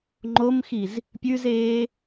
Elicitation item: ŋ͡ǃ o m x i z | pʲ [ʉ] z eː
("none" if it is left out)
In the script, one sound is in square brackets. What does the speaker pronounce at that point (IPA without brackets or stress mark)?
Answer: ʉ